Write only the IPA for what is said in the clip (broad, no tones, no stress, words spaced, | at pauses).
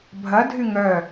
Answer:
bʱɐdʱy ŋœ